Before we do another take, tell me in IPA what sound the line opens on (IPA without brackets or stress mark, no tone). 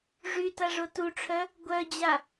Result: ʐ